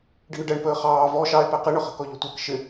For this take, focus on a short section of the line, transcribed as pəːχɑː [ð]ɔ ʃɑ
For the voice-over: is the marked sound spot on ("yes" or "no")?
no